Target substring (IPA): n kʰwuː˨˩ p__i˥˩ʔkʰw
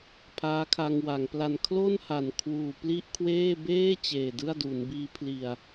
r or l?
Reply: l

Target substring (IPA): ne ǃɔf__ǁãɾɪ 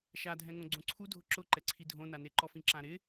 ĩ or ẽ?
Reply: ĩ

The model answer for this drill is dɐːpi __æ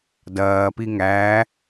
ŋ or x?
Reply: ŋ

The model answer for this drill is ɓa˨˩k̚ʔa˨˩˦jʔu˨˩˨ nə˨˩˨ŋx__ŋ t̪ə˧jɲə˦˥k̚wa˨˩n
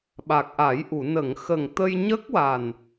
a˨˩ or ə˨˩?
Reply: ə˨˩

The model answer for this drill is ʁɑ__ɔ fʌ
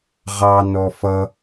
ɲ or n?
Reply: n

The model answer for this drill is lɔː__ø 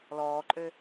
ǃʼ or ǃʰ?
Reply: ǃʼ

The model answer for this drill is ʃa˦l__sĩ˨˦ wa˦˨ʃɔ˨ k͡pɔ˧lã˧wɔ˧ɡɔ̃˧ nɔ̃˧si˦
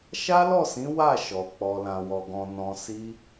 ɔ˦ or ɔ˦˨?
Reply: ɔ˦˨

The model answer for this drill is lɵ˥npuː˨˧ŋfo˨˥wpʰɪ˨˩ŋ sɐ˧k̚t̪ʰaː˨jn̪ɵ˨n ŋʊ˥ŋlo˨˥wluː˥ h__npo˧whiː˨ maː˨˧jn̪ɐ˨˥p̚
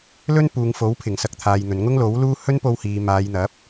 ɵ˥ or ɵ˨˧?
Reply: ɵ˥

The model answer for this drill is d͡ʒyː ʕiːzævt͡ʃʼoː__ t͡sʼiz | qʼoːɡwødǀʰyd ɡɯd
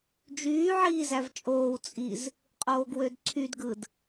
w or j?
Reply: w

